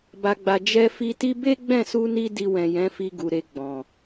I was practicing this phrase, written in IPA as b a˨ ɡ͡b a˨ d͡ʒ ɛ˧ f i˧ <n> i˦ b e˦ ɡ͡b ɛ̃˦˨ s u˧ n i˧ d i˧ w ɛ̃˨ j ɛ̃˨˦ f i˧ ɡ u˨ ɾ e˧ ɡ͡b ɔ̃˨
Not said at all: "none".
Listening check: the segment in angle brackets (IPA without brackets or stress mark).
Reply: t